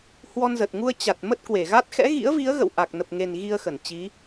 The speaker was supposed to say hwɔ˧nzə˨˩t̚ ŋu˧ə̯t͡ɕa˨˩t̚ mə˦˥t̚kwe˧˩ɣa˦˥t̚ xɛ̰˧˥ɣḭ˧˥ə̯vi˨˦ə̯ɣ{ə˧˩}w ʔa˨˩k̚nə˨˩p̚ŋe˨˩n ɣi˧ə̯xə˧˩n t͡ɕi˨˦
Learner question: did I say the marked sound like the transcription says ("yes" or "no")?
no